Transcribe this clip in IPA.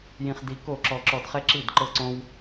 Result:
j ĩ˧ χ d i˧ k o˦˨ ǁ ɔ˧ ǁ ɔ˧ d χ ɛ˦ ǁ i˦˨ d ǃ ɤ˦ ǀ õ˦ w

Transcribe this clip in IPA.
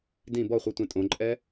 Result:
d ĩ b ɔ χʷ i tʷ ẽ tʼ õ ǃʼ ɛ

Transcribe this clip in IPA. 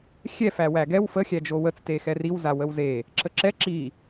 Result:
xʲ ɛ f æ w æ ɡ ɛ w f ə xʲ æ d͡ʒ o w ə t͡s t e x ɛ r i w z a w ə w z e | ǁ ə ǁ ɛ ǁ i

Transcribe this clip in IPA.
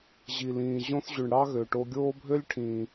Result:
ʑ i˨ l ĩː˨ ʑ õ˧ θ ʑ y˨ ɳ ɽ ɑ˦ ɣ ø˨ ʈ o˧ ɡʲ oː˦ bʱ ø˦ lʲ ʈʰ ĩː˨

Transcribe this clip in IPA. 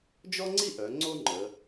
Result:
d͡ʒ ɔ˥ ŋ͡ǀ i˥ ʔ œ˩˧ ŋ͡ǀ o˥ ŋ͡ǃ ə˩˧

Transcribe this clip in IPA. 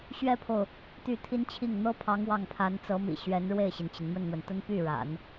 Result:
ɕ ɥ ɛ˥ pʰ o˨ ʊ̯ | t̪ y˥˩ t̪ʰ i˥ n t͡ɕʰ i˥˩ ŋ n̪ ɤ˥ pʰ ɑ˧˥ ŋ w ɑ˥˩ ŋ pʰ a˧˥ n t͡s ɤ˧˥ m ḭ˨˩ ɕ ɥ ɛ˧˥ n ɻ w e˥˩ ɪ̯ ɕ i˩ n t͡ɕ i˩ n m ə˥˩ n n̪ w ə˩ n t̪ ə˥ n p y˥˩ ɻ a̰˨˩˦ n

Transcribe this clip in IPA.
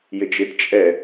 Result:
j ɪ d͡ʒ ɪ d t͡ʃʼ ɛ

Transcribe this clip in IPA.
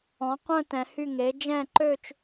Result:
ɔ̃˩˥ qʷ œ̃˥˧ t ɛ̃˩˧ h y˥˩ ŋ e˩˥ d͡ʒ ɛ̃˥˩ ǃ ø˥˧ t͡ʃ

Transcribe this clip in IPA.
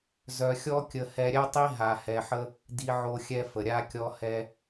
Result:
z œ˧ xʲ ɔ˦ kʲ ə˧ h ɛ˧ ɾʲ ɛ˦ tˤ i˦ ɦ a˧ h ɛ˧ ħ ə˦ | d i˦ ʕ o˦ xʲ ɛ˦ f ə˨ ɾʲ a˧ kʲ ɔ˧ h ɛ˧

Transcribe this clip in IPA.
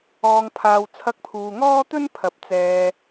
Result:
ɔː˧ ŋ pʰ aː˧ w t͡sʰ ɐ˧ k̚ pʰ uː˨ ŋ ɔː˥ t̪ ɵ˥ n pʰ ɐ˨˥ p̚ t͡s ɛː˧

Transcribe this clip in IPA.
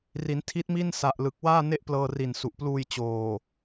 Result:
r i˩˦ n tʰ i˦˥ t̚ m i˥˩ n s a˨˩ ʔ l ɯ˨˩ k̚ w aː˥˩ n e˥˩ ʔ p l ɤː˧ r i˨˩ n s u˨˩ ʔ p l uː˧ j t͡ɕ oː˨˩

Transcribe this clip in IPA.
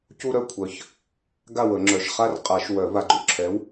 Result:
c u˦ ɾ œ˥˨ kʷʰ œ˨ ç | ɡ a˥˨ w ə˨˩˦ ŋ͡ǁ œ˨˩˦ ʃ χ a˦ r qʼ a˨˩˦ ʃ w œ˨˩˦ v a˨ ɡ͡ǃ ṵ˨ ǁʰ ɛ˨˥ w

